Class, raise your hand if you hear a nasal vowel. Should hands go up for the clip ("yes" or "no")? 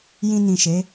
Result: yes